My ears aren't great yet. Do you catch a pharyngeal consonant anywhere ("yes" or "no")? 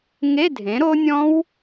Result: no